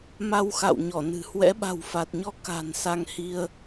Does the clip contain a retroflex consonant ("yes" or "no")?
no